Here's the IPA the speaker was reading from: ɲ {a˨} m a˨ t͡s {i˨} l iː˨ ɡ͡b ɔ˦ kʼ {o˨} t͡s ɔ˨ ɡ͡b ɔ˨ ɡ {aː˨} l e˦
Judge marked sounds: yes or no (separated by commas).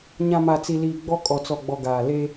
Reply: no, yes, no, yes